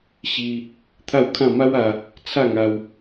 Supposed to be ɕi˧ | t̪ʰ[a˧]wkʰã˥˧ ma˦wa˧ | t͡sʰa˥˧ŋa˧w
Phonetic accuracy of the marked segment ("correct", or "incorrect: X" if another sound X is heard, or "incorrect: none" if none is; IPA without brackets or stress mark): incorrect: a˥˧